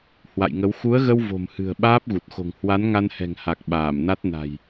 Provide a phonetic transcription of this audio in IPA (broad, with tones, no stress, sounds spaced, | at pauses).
h w a̰˧˨ j ŋ ə˨˦ w x u˨˦ ə̯ ɣ ə˧ w v o̤˨˩ m h ɨ̤˨˩ ə̯ ɓ aː˦˥ p̚ ɣ u˨˩ t̚ x o̤˨˩ ŋ h w a˨˦ n ŋ a˧ n h ɛ̤˨˩ ŋ h a˨˩ k̚ ɓ aː˧˩ m n a˦˥ t̚ n a̤˨˩ j